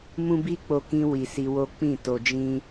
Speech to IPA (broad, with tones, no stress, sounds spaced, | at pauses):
m ũ˦ b i˦ k͡p o˧ k ĩ˧ w i˨ s i˧ w o˦ k͡p ĩ˦˨ t o˨ d͡ʒ ĩ˧